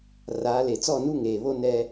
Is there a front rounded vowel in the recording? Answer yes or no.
no